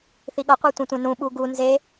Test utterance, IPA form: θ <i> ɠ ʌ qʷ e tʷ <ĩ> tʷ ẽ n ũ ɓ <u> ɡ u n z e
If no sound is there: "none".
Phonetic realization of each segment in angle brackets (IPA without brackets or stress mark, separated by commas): i, ẽ, u